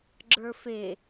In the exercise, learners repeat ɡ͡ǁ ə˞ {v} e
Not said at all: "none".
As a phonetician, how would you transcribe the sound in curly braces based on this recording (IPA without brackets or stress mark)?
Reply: f